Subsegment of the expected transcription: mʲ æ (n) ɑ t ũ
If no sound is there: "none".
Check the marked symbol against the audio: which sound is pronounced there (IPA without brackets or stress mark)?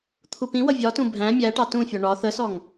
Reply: ʈ